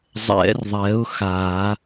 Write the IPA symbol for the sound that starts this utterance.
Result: zˤ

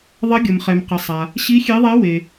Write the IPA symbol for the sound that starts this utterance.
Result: ðˤ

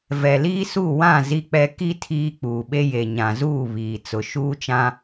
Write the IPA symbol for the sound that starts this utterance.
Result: v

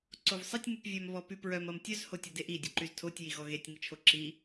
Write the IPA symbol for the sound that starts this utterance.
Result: ǀ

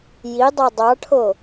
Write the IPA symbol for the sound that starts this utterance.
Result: j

